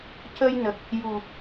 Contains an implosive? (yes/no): no